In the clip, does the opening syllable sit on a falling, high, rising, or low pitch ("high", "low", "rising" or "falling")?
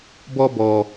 high